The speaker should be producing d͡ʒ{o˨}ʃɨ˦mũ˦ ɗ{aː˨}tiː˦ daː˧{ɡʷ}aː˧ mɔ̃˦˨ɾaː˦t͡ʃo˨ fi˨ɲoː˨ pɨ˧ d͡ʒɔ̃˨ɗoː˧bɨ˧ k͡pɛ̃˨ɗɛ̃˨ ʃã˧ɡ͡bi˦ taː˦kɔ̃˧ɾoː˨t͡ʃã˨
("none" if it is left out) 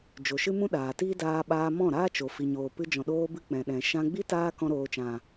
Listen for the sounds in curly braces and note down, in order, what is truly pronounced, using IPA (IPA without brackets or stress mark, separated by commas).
o˨, aː˨, ɓ